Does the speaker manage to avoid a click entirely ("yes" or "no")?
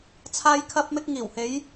yes